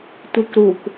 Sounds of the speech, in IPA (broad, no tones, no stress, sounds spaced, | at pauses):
tʷ i k ɾ u k